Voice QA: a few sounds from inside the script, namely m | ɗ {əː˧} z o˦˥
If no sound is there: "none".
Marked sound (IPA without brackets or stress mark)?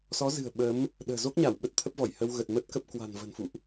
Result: ə̤ː˨˩